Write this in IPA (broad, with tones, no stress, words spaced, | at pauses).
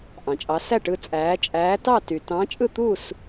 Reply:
ʔɑ̃˩t͡ʃʼɑ˨˦ sæ˥˨ʈɯ˥˨t͡sʼæː˨˦ t͡ʃʼæː˨˦tɑ˥˨ ty˩ tɑ̃˨˦ t͡ʃʼɯ˥˨t̪u˥˨s